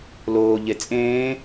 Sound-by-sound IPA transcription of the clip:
l oː ʎ e t͡sʼ ẽː

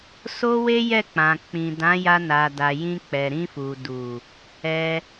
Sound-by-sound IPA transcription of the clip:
s o˦ w e˦ j ɛ˦˨ k͡p ã˨ k͡p ĩ˨ d ã˨˦ j a˧ n a˨ d a˨ j ĩ˧ k͡p ɛ˨ ɾ ĩ˧ f u˨ d u˨ | ɛ˧

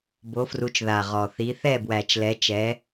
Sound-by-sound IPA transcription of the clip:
b o˨˦ f r u˨˦ t͡ʃ ð a˨˩ ʁ ɔ˨˩ θ i˨˦ θ ɛ˥˨ b w æ˨˩ t͡ʃ l ɛ˨˦ t͡ʃ ɛ˨˦

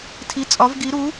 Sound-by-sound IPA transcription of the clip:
tʰ i˨˥ t͡sʼ ɒ˨˥ v ɡ i˨˥ ɾ u˨˥

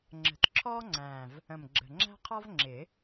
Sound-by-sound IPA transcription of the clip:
ŋ͡ǁ ə̤˨˩˦ t ǁʰ ɔː˥ ŋ͡ǀ æ̃ː˨˩ v | ə̃˨˩ m ɡ͡ǁ ə̤˨˩ ŋ͡ǁ æ̤˥ qʰ ɒ˥ v ŋ͡ǁ ɪ˨˩˦

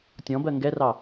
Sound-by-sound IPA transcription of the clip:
tʲ ɔ̃ b ɜ ŋ ɡ ɛ r ɑ

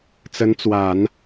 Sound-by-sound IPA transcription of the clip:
t͡s ə˧˥ n t͡s w a˨˩˦ n

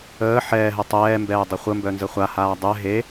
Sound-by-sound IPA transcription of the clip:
əː ħ ɛː ɦ ɛ tˤ ɛː m b ɛː dˤ ə χʷ ə m b œ n z ə χʷ a h aː dˤ ɛ ɦ e

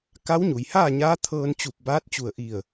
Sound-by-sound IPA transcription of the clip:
k a˧˥ w ɲ u˩ j h aː˥˨ ɲ aː˧˥ t̪ʰ ɤː˧ n t͡ɕ u˧˩ p̚ b aː˧˥ t̚ t͡ɕ u˧˩ ə̯ ʔ i˧˩ ə̯

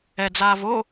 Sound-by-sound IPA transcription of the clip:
ɛ d͡z aː v o

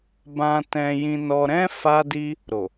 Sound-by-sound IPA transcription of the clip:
b ã˧ t ɛ̃˧ j ĩ˧ n ɔ˧ ɾ ɛ̃˦ f a˦ d i˦ | ɾ o˨

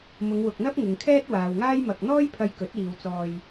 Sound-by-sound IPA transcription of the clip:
m ʊ˨˧ ŋ w ʊ˨ k̚ n̪ ɐ˥ p̚ ŋ ɪ˨ ŋ kʰ ɛː˥ t̚ w aː˨ w ŋ aː˥ j m ɐ˧ k̚ n̪ ɔː˥ j pʰ ɐ˧ j k ɵ˨˥ t̚ iː˨ w t͡s ɔː˧ j

